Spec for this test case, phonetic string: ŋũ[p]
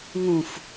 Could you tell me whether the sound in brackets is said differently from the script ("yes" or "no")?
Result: yes